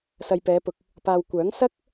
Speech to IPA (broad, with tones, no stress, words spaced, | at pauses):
sɐ˨jpɛː˨˧pʊ˨k̚ | paː˨wkʷœː˨˥ŋ sɐ˥k̚